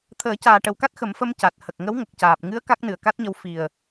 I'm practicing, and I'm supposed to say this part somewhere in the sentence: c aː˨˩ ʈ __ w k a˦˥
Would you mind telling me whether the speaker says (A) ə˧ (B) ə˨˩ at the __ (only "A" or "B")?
B